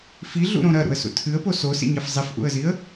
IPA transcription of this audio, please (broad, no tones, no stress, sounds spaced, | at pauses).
f i ɮ ṵ ɾ õ ɾ ɐ ɾ ṵ ə̯ s ṵ tʰ ɨ ə̯ p o s o s ḭ ɲ ɐ f zˤ i f ʔ ṵ ə̯ z i ə̯